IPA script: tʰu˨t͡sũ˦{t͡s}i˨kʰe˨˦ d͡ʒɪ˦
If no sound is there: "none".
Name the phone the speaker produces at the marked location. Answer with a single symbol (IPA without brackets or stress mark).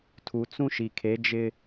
ʃ